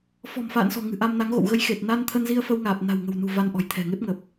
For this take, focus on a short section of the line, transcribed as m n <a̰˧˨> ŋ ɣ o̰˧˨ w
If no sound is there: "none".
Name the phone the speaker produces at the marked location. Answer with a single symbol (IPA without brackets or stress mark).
a˨˦